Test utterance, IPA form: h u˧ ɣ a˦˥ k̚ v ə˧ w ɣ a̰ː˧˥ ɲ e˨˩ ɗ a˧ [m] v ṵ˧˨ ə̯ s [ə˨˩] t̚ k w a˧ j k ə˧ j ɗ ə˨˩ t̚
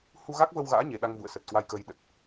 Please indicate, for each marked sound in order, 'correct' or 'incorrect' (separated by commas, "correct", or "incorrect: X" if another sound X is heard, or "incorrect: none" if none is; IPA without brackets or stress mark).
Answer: incorrect: ŋ, correct